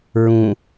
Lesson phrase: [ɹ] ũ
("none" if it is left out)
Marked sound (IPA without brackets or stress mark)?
ɹ